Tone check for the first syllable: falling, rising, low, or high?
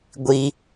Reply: high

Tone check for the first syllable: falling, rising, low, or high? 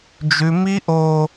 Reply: high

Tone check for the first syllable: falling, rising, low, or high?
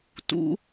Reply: rising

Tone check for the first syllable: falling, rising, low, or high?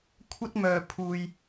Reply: high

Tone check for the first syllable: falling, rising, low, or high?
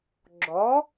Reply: rising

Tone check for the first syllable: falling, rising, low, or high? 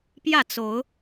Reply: falling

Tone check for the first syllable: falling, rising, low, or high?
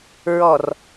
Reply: low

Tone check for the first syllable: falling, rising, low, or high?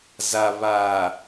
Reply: low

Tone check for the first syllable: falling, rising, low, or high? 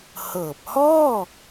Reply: low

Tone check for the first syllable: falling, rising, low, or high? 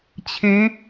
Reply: rising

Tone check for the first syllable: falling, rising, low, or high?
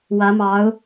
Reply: rising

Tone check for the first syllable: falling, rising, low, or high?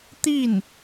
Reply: falling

